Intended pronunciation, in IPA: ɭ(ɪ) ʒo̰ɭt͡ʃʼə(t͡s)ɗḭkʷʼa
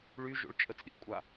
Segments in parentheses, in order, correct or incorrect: incorrect: y, correct

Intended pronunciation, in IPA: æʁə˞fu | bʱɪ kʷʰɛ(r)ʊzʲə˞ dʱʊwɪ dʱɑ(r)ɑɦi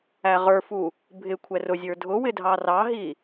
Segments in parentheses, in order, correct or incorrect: correct, correct

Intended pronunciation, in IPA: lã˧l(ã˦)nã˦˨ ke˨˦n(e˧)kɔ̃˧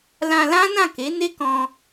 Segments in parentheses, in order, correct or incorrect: correct, incorrect: e˦

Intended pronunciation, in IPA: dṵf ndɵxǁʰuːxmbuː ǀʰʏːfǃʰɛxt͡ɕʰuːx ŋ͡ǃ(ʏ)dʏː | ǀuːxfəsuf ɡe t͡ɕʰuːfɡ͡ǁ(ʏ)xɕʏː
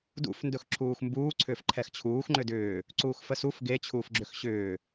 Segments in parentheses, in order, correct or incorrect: correct, correct

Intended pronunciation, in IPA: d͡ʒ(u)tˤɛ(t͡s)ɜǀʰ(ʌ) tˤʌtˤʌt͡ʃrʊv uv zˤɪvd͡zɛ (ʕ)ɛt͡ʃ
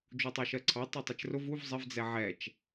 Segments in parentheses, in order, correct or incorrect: correct, incorrect: ʃ, incorrect: ɑ, correct

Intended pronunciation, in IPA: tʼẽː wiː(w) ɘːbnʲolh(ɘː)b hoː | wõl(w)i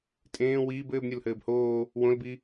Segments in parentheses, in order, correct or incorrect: incorrect: b, correct, incorrect: b

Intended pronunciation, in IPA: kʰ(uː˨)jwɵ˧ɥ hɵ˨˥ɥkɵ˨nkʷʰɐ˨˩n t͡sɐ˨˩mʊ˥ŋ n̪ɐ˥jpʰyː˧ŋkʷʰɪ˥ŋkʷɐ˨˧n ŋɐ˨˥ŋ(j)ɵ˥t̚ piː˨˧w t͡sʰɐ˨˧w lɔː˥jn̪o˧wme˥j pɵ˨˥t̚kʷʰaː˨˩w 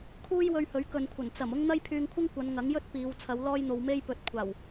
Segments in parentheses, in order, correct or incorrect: incorrect: uː˥, correct

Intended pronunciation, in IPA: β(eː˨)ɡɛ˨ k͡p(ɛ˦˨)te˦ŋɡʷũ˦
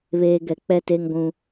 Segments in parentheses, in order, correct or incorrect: correct, correct

